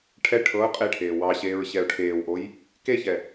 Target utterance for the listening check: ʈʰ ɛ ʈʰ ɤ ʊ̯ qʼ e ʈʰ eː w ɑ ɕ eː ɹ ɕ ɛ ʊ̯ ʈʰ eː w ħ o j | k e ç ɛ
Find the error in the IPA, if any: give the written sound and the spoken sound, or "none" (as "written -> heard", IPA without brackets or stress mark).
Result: ħ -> ʔ